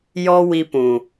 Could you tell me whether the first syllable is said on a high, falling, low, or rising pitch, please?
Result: high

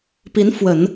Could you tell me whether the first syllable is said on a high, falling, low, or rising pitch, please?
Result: rising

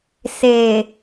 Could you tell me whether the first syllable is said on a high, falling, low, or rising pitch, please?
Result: low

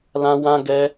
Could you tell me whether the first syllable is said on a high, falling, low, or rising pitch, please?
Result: high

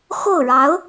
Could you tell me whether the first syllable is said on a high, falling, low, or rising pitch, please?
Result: falling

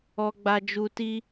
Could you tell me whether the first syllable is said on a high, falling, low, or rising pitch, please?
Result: low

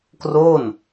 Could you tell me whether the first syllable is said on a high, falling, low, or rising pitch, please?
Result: falling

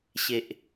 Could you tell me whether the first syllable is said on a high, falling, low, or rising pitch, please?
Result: low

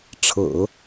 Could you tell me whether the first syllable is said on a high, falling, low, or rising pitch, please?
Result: low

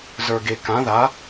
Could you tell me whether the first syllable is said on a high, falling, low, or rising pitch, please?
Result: low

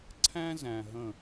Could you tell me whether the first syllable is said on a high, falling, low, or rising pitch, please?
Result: high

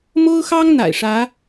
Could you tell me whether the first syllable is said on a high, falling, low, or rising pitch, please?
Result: high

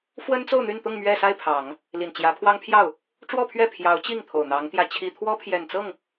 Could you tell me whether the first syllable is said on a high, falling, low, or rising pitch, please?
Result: high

